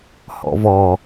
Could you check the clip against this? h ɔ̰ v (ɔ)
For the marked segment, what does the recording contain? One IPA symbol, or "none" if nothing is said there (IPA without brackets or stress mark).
ɔ